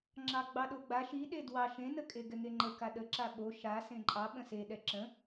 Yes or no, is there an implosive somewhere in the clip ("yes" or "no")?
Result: yes